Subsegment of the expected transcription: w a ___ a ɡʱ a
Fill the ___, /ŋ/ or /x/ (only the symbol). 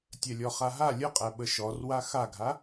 x